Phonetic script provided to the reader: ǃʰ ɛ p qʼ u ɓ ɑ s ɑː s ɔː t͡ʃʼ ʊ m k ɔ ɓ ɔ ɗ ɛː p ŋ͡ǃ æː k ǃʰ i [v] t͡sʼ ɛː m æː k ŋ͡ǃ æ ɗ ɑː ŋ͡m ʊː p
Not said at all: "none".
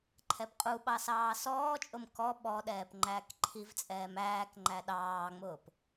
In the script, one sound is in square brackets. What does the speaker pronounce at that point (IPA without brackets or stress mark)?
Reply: v